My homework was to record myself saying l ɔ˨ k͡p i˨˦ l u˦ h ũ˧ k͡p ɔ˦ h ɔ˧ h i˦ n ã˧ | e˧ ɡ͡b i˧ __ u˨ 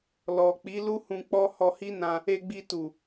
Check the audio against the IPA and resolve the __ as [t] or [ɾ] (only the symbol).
t